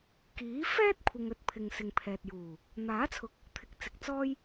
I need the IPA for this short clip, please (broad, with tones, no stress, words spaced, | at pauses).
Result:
kiː˨˥fɛː˥t̚kʷʰɪ˨ŋ ɵ˥t̚pʰɪ˨ŋsɪ˨ŋpʰɛː˨t̚ juː˨˩ | n̪aː˨˥t͡sʰʊ˨˥k̚ | t̪ʰɪ˨˥k̚t͡sɪ˨k̚t͡sɔː˥j